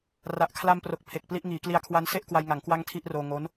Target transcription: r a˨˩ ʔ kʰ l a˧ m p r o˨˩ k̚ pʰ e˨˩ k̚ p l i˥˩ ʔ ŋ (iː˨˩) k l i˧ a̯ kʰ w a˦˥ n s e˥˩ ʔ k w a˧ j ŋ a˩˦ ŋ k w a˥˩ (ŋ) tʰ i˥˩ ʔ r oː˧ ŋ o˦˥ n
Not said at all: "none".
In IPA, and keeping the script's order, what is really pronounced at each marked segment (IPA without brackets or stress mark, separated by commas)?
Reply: iː˩˦, ŋ